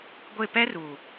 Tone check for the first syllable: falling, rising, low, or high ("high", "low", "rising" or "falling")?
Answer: falling